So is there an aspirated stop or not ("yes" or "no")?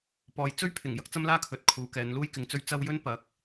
yes